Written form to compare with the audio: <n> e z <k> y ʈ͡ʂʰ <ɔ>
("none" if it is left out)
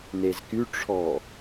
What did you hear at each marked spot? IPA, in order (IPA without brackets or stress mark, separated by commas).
n, k, ɔ